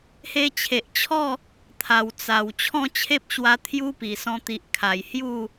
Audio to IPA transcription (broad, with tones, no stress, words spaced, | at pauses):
he˧t͡ɕʰe˨ʔt͡ɕʰɔ˥˧ | t̪ʰa˨˩wt͡sa˨˩w t͡ɕʰɔ̃˥˧t͡ɕʰe˦p̚ɕwa˧ t̪ʰju˦pi˨˩sɔ̃˧ t̪i˨ʔkʰa˨˩j hju˥˧